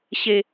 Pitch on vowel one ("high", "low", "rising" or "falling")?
low